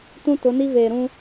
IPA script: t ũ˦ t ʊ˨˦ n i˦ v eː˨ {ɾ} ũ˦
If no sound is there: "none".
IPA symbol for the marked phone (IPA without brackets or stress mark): ɾ